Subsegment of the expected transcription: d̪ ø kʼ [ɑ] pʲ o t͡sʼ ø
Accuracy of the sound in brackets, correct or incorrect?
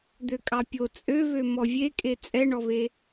correct